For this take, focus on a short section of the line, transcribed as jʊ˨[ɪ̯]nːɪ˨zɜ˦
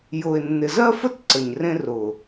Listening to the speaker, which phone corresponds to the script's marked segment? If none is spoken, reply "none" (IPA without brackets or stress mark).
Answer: ɪ̯